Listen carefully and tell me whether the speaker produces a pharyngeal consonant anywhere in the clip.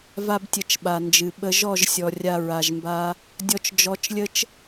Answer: no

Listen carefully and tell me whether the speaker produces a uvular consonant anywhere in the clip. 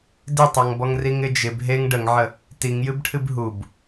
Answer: no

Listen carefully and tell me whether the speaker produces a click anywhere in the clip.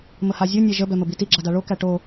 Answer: yes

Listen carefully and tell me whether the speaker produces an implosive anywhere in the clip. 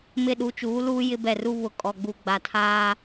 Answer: yes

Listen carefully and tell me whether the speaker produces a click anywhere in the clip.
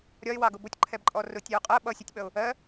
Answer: yes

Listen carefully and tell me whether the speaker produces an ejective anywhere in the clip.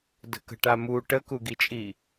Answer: yes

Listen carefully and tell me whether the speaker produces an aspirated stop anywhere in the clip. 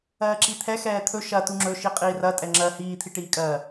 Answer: yes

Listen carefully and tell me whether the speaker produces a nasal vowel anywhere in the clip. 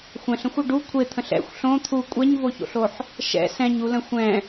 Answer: yes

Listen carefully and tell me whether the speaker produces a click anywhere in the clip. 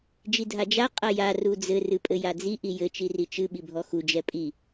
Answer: no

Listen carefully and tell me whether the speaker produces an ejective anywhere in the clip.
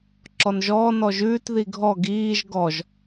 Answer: no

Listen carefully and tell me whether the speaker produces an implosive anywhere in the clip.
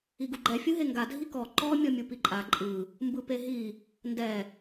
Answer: no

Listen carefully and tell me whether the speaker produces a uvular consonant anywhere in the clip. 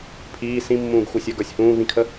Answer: no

